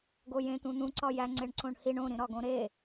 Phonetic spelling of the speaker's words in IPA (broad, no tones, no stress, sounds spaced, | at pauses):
ɡ o j ẽ t̪ ũ n̪ ũ ǀ ɒ j æ ŋ͡ǀ e ɳ ǀ õ ɳ h i ɳ õ ɾ ĩ ɾ ɒ ɡ õ ɾ e